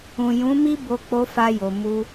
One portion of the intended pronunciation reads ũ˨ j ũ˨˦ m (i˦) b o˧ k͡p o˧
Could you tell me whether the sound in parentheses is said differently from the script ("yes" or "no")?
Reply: no